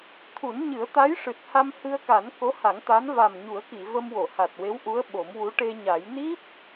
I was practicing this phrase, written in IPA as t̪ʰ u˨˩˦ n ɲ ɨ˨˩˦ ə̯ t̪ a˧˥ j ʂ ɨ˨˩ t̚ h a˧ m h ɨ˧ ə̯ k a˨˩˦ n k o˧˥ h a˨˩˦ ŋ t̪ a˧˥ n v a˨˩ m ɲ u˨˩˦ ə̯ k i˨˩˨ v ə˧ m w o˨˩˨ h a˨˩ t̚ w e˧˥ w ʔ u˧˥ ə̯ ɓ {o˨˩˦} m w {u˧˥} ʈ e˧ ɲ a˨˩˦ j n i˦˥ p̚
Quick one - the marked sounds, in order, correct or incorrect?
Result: correct, correct

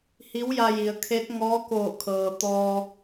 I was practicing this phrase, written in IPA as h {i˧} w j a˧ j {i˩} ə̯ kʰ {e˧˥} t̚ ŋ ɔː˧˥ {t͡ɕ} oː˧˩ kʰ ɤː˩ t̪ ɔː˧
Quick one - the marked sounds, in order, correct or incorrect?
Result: incorrect: i˧˥, correct, correct, incorrect: k

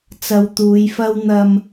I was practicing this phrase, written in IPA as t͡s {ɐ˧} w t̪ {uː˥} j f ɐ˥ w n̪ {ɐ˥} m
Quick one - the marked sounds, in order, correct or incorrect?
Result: correct, incorrect: uː˨˧, incorrect: ɐ˧

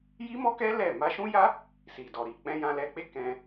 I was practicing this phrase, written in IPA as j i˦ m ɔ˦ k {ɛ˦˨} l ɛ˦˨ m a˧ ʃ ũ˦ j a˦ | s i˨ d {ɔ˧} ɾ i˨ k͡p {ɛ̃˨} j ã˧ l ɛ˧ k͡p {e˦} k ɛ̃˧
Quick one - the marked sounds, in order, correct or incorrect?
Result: incorrect: ɛ˦, incorrect: ɔ˨, incorrect: ɛ̃˧, correct

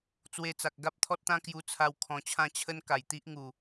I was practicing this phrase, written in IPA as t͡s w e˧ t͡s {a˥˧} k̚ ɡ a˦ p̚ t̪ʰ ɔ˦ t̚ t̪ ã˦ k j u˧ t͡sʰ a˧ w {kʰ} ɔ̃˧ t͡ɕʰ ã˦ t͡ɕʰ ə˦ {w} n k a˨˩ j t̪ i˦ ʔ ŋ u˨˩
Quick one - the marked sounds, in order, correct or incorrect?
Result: incorrect: a˨, correct, incorrect: none

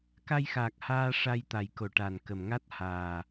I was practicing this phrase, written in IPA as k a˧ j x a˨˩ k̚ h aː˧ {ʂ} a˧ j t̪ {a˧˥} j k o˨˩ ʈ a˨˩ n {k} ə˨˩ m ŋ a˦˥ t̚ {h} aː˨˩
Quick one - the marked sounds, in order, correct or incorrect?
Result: correct, incorrect: a˨˩, correct, correct

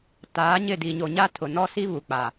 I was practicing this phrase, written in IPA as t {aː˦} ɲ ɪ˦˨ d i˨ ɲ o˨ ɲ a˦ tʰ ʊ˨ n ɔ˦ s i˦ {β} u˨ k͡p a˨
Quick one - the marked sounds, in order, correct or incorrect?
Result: incorrect: aː˨˦, correct

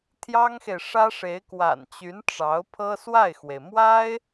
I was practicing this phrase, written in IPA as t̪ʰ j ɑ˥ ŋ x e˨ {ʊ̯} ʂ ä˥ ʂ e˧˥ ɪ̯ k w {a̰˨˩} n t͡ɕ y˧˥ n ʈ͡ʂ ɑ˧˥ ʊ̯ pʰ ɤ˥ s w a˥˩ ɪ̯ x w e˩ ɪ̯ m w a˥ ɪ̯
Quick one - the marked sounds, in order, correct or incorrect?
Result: incorrect: ɪ̯, correct

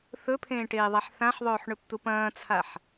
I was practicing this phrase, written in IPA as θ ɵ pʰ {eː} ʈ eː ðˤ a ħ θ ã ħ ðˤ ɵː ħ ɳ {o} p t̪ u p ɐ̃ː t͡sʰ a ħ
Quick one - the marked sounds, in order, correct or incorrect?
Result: incorrect: ẽː, incorrect: ɵ

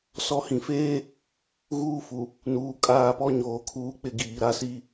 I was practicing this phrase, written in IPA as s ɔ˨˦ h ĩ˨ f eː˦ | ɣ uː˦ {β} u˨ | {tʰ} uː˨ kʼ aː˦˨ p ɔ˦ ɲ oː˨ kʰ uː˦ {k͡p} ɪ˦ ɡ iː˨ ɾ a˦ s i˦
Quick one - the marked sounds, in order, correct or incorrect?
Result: incorrect: f, incorrect: n, correct

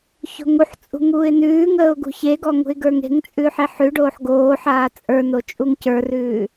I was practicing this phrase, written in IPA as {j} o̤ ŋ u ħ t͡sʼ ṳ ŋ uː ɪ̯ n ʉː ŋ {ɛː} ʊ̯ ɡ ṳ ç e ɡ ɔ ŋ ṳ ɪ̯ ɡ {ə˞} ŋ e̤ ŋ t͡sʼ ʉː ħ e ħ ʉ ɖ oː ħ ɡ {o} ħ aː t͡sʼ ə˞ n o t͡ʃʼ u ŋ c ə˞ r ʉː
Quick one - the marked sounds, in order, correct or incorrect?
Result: incorrect: ç, incorrect: əː, correct, incorrect: oː

